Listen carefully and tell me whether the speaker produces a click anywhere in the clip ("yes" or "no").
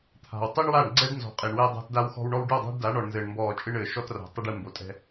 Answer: yes